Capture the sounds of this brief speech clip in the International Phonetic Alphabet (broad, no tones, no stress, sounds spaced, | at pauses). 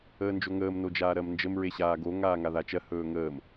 əː n d͡ʒ o ŋ əː m n o d͡ʒ aː ɾ ɜ m n d͡ʒ ə m ɹ e ɕ aː ɡ o ŋ aː ŋ a ð a t͡ʃ ɜ h ɵː ŋ əː m